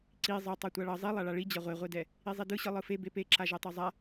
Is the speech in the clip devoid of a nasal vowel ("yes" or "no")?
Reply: yes